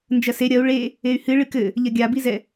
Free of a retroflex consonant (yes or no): no